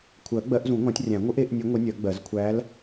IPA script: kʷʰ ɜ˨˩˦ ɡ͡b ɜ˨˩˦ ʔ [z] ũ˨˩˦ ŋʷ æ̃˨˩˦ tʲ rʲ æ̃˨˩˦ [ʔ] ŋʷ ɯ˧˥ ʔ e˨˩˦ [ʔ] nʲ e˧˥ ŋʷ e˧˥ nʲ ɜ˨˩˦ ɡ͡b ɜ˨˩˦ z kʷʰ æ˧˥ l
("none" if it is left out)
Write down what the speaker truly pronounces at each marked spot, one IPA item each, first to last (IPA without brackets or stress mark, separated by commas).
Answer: z, none, ʔ